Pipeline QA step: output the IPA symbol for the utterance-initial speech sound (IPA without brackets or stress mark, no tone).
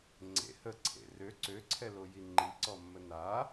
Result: ŋ͡ǀ